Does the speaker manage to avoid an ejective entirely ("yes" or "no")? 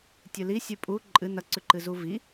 no